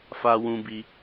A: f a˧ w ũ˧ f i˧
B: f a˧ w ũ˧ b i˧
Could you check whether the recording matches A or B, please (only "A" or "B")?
B